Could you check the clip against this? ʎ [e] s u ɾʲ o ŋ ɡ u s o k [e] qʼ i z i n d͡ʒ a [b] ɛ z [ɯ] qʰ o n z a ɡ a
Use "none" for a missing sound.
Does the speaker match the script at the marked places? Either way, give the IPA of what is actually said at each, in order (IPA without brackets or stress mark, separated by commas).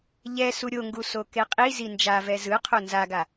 ɛ, e, v, ɯ